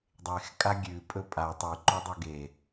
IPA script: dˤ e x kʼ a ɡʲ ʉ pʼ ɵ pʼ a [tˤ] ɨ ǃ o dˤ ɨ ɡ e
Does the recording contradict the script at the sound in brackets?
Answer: no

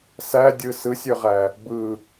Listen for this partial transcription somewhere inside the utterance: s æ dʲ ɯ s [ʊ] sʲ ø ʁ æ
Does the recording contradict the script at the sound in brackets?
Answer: yes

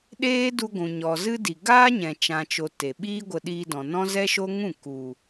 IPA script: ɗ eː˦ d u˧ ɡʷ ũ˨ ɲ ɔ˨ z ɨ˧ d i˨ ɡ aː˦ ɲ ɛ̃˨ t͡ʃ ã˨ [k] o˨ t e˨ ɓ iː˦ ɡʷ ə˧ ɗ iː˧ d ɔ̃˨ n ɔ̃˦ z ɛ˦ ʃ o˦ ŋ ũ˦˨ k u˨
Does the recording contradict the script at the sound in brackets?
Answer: yes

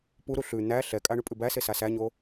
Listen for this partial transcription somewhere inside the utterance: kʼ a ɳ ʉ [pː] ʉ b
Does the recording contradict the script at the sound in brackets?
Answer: yes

